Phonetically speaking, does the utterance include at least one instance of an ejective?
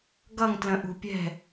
no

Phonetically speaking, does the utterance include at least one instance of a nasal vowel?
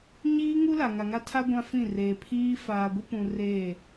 yes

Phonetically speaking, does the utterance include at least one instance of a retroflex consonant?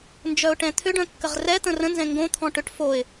yes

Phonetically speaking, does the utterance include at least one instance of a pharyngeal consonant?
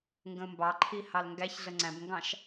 no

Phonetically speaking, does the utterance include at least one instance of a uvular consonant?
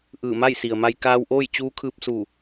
no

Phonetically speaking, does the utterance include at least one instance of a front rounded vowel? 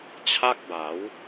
no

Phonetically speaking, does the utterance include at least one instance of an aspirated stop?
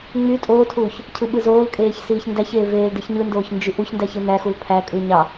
yes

